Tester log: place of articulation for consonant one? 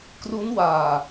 velar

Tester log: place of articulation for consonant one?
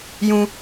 palatal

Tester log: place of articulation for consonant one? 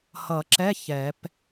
glottal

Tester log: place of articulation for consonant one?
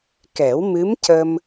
velar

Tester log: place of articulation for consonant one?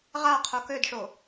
uvular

